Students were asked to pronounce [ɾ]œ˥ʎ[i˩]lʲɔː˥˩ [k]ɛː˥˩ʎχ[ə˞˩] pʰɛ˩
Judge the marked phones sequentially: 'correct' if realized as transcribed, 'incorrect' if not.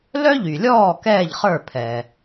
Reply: incorrect: l, incorrect: y˩, correct, incorrect: ə˞˥˩

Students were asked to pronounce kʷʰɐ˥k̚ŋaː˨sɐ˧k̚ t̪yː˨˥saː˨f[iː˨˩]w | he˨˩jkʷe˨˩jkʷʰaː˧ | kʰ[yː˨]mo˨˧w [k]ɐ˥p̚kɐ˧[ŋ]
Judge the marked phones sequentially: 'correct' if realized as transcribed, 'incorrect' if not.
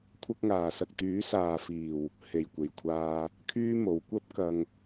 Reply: correct, incorrect: yː˥, incorrect: kʷ, correct

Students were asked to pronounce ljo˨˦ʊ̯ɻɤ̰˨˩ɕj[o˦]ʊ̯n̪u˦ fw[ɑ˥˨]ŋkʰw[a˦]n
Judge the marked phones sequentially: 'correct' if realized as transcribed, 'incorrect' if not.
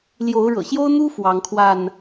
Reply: correct, incorrect: ɑ˨˦, incorrect: a˥˨

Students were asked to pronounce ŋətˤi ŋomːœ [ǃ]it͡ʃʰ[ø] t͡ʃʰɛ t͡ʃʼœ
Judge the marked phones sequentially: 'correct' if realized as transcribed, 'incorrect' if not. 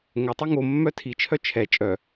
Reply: incorrect: tʰ, incorrect: œ

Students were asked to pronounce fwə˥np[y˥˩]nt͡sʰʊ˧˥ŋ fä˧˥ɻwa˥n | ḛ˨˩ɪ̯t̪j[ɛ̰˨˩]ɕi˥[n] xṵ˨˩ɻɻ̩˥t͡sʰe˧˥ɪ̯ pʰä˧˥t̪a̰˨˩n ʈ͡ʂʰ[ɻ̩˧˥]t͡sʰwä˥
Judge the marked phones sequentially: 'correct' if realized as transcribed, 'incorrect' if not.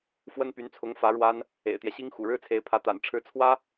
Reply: incorrect: y˧˥, incorrect: ɛ˦, incorrect: ŋ, correct

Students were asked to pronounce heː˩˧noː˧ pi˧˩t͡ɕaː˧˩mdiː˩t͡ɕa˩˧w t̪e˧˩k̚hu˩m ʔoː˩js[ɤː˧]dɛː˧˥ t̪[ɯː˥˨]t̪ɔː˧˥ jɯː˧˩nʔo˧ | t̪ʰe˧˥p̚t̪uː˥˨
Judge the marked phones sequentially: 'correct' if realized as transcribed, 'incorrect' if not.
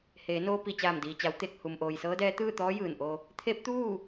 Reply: incorrect: ɤː˧˥, correct

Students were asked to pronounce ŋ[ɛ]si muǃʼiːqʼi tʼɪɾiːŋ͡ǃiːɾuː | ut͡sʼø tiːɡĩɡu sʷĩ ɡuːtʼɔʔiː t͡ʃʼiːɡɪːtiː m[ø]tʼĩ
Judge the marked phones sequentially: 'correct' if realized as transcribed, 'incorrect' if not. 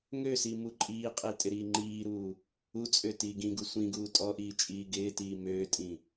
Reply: incorrect: ø, incorrect: øː

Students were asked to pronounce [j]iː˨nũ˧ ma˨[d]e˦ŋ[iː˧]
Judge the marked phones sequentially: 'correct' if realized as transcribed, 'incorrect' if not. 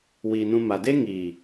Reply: incorrect: w, correct, incorrect: iː˨

